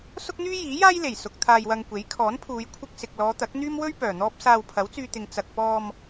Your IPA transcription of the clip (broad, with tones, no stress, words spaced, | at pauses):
sʊ˥k̚n̪yː˥ jiː˨˥jaː˥jle˨˩j sʊ˨k̚ t̪ʰaː˧jwɐ˧ŋkʷe˨˥j kʰɔː˨˥npʰuː˨˧j kʷʰɪ˧k̚sɪ˨k̚lɔː˨˧ t̪ɐ˨˥k̚n̪yː˥mwɵ˥ɥ pœː˨˩n̪ɔː˥p̚ saː˧wpʰɐ˨˥wt͡syː˧t̪ɪ˨ŋ t͡sɐ˨k̚pɔː˧m